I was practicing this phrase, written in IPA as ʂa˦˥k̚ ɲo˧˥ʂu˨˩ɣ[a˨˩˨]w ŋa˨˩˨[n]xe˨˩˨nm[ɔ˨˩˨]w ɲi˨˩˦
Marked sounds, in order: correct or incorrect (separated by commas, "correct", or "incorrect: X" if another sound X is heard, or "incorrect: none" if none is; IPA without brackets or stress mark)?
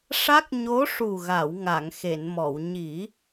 correct, incorrect: ŋ, correct